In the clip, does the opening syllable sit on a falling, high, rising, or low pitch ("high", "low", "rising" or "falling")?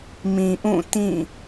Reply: low